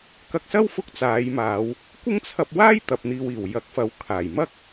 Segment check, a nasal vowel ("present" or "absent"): absent